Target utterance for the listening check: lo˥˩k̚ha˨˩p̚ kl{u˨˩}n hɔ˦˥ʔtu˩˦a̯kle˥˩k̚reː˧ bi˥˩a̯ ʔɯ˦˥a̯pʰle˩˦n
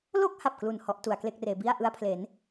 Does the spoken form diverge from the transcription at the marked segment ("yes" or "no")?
no